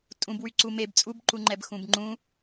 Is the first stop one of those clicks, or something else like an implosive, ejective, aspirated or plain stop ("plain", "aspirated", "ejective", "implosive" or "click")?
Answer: ejective